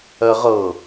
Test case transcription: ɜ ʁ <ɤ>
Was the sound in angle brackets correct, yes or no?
yes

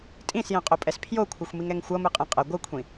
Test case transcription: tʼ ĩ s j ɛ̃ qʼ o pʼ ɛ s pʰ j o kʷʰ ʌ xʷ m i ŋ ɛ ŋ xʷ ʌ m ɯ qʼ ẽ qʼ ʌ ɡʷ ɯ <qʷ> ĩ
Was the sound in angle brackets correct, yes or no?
no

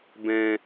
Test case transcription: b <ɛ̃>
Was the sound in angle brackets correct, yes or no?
yes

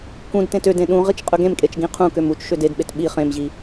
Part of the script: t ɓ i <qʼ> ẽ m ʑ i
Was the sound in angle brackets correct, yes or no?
no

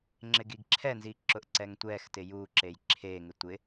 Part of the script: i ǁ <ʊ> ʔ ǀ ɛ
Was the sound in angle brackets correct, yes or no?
yes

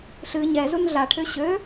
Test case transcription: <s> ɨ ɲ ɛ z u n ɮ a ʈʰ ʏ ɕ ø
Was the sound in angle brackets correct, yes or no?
no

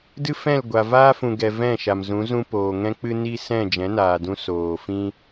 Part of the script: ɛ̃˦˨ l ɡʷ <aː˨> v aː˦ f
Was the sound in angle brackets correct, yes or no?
no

